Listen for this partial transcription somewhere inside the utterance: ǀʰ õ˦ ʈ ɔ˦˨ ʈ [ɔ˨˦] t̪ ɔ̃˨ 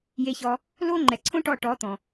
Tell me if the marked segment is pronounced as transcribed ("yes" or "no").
yes